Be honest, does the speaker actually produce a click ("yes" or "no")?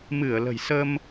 no